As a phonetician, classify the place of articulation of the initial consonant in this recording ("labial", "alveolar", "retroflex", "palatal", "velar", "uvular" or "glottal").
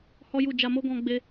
glottal